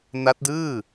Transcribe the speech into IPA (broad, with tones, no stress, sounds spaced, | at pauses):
n a˦˥ t̚ d ɯː˥˩